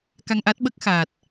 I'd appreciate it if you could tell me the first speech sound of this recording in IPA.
k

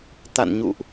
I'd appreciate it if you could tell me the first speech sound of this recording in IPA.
t̪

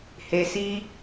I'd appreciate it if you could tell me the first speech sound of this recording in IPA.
h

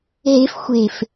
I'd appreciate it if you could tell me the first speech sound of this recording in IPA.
ɦ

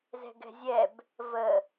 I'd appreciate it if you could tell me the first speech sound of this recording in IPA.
z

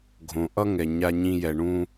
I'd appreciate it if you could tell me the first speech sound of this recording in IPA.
ɡʱ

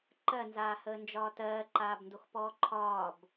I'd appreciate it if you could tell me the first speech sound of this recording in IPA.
ǃ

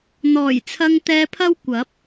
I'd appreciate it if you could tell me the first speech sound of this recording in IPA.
n̪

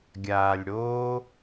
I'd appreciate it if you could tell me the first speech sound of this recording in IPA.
ɡʲ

